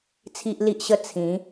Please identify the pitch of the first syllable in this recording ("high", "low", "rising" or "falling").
high